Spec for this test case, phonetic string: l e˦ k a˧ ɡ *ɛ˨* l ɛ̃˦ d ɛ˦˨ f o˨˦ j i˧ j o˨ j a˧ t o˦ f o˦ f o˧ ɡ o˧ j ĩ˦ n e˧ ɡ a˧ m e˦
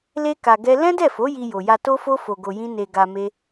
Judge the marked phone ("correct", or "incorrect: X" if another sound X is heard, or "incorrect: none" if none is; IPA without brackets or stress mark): incorrect: ɛ˦